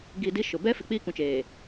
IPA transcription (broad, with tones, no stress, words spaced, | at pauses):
ɡi˨ di˦ʃʊ˨ bɛ˦ fɪ˨k͡piː˦kũ˨t͡ʃeː˨